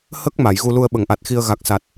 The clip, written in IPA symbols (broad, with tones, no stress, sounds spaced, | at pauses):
h ə˦˥ k̚ m a˨˩˨ j ɣ u˧ l u˧ ə̯ ɓ ə˨˩˨ ŋ ʔ a˨˩ t̚ x i˧ ə̯ ɣ a˨˩ k̚ s a˨˩ t̚